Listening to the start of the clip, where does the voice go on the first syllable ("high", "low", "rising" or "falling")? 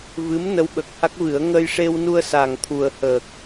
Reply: rising